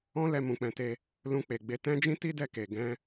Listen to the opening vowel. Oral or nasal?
nasal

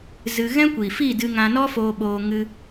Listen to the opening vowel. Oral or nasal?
oral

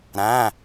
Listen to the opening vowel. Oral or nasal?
nasal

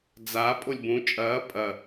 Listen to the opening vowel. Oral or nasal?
oral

